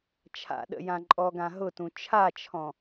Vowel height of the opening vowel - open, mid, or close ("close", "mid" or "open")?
open